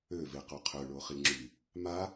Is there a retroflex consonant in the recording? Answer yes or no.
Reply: yes